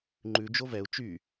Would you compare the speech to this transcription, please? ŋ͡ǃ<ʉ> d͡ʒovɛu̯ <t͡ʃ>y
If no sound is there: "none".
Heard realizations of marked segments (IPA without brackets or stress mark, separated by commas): ʉ, t͡ʃ